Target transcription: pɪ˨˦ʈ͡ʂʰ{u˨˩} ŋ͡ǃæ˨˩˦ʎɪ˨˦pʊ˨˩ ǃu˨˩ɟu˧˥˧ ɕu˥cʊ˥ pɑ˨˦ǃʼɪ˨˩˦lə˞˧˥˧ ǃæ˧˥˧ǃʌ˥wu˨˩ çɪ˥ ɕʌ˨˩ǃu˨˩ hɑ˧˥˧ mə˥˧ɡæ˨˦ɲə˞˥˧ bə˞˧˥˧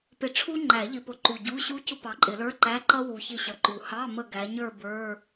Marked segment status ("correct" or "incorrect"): incorrect